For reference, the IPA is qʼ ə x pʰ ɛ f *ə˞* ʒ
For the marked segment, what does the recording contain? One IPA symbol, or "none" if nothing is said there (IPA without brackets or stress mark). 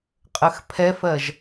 ɜ